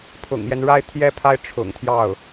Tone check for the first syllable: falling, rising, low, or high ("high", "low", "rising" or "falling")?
low